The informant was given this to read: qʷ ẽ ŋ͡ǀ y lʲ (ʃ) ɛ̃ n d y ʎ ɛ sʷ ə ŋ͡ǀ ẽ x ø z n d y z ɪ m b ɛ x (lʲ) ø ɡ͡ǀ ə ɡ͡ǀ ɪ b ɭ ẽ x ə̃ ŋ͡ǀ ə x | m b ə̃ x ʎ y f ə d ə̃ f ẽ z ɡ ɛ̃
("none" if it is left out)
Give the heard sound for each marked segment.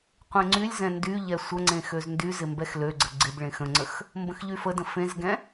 z, l

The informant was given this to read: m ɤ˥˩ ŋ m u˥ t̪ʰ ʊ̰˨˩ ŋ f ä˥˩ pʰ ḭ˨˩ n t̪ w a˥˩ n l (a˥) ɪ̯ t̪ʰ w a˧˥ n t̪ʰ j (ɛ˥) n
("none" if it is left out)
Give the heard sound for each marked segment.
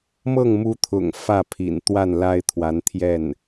a˥, ɛ˥˩

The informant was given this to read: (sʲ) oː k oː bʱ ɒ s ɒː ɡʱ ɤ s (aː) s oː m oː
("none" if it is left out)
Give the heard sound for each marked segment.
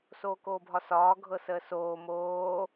s, əː

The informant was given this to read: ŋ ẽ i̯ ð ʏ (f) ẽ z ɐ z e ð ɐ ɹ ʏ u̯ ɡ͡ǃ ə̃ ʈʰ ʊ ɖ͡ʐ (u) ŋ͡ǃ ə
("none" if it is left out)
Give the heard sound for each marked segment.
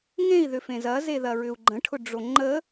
f, o

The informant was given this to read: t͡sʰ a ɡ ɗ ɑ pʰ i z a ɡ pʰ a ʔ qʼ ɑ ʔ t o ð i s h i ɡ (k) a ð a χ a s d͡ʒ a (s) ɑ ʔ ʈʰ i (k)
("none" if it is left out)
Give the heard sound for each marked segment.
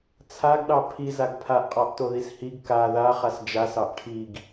k, s, ɡ

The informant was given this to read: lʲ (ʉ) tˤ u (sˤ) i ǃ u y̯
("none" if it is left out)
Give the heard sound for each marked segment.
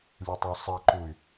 ʉ, sˤ

